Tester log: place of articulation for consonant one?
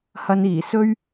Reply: glottal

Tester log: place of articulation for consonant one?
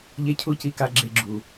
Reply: palatal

